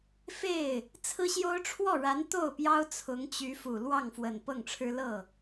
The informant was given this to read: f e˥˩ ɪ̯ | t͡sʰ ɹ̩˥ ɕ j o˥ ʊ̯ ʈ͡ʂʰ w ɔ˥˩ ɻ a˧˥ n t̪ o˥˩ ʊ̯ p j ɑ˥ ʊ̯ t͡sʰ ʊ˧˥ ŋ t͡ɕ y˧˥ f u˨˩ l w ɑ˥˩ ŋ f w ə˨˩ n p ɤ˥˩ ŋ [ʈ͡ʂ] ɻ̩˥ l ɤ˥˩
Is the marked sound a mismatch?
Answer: yes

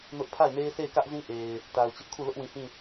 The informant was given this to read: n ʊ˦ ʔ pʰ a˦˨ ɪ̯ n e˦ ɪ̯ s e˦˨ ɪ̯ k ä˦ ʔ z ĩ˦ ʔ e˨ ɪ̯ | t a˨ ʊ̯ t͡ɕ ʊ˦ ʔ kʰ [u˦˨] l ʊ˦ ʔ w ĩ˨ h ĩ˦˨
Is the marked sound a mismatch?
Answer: no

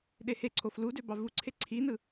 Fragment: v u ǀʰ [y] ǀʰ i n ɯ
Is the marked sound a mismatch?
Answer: yes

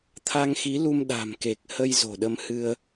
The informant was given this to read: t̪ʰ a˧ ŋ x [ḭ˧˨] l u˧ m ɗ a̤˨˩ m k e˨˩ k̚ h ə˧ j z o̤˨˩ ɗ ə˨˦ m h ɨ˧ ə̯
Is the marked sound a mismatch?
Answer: yes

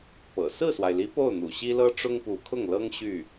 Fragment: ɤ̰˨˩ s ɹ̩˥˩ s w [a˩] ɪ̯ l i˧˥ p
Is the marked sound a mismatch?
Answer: no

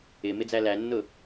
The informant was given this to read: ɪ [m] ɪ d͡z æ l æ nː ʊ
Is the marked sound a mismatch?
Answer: no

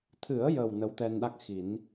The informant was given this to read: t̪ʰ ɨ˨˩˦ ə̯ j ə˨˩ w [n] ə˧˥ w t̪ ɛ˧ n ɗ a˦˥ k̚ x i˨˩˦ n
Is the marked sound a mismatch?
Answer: no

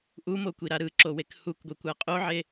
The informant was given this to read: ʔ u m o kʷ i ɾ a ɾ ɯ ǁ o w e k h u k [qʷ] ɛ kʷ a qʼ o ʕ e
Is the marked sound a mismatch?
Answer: yes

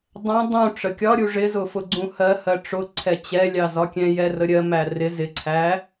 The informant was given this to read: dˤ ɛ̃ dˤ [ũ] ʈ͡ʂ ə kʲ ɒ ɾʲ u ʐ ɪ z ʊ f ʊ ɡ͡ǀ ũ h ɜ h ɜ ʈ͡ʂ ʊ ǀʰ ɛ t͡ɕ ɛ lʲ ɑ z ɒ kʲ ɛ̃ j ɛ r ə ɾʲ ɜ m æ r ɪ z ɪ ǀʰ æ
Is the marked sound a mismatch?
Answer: no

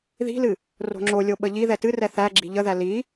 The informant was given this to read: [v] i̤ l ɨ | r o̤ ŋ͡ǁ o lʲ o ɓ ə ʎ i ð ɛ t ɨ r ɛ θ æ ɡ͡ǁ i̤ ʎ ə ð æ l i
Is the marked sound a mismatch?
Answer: yes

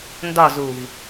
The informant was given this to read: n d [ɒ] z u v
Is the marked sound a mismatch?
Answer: no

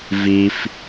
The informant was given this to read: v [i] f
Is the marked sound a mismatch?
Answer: no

